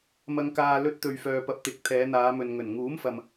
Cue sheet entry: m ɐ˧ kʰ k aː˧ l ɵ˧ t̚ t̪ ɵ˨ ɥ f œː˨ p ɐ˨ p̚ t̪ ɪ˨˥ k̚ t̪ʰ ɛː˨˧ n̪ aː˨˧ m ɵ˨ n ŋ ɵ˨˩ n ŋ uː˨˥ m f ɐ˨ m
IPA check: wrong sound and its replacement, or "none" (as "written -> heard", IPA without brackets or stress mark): kʰ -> ŋ